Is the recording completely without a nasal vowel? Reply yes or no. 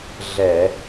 yes